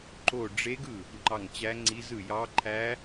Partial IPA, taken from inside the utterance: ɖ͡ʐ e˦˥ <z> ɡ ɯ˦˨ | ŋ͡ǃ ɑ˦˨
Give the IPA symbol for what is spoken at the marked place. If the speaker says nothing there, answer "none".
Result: none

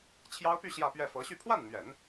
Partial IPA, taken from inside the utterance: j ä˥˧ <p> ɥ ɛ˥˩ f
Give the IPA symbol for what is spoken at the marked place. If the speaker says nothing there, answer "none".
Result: p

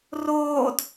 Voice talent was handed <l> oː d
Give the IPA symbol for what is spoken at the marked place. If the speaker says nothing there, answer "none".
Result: r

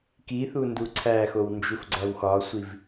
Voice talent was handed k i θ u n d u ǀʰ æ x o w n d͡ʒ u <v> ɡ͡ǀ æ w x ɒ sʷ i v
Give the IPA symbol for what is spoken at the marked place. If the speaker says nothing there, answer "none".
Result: f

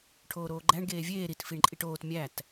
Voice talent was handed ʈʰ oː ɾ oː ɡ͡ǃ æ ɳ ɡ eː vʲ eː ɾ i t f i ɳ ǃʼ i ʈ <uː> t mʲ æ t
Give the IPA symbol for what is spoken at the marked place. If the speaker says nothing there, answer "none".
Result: oː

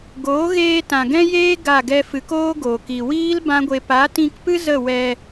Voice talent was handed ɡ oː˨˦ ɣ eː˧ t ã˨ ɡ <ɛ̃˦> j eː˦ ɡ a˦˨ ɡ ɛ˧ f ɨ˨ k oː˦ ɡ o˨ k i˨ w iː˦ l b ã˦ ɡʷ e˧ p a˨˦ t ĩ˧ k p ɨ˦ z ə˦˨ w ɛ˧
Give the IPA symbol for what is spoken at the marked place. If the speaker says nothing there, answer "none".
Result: ɛ̃˦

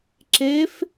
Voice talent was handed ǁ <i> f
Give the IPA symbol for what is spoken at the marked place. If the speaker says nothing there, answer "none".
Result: e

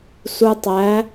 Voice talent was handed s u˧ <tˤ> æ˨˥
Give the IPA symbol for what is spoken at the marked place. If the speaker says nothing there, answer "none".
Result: tˤ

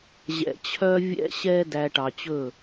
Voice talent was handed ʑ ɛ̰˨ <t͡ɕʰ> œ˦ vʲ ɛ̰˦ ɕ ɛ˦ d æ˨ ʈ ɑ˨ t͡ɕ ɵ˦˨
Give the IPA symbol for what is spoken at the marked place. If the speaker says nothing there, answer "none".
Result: t͡ɕʰ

